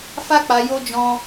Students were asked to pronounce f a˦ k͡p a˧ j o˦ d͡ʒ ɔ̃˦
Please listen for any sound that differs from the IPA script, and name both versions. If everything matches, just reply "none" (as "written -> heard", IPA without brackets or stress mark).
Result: none